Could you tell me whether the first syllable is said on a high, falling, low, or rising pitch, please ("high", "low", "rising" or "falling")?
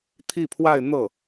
falling